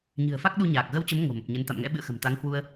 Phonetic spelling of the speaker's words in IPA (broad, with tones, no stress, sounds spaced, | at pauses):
ɲ ɨ̤˨˩ ə̯ f a˦˥ k̚ ɗ u˧ ɲ aː˨˩ k̚ ɣ ə˧ w t͡ɕ ə˨˦ m ŋ o̤˨˩ m ə˨˩ p̚ ɲ ə˨˦ n t̪ a̰˧˨ m ŋ ɛ̰˧˥ ɓ ɨ̰˧˨ ə̯ x ə̤˨˩ m t̪ a˨˦ ŋ h w u˧ ə̯